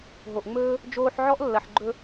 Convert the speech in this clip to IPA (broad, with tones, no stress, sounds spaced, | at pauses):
ɦ o˨ ʔ ŋ͡m ɵː˦ | d͡ʒ oː˧ ħ ʕ ɔ˦ ʔ lː ɐ˨ ħ ɡ͡ǃ ɵ˧